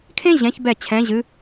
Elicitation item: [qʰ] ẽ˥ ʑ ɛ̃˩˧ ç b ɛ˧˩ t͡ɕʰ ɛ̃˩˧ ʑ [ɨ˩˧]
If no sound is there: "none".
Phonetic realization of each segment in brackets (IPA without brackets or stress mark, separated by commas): kʰ, ɨ˩˧